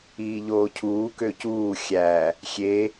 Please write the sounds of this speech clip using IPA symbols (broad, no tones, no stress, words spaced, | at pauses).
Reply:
iːʎoːcʰuː køcuː xʲæ | xʲe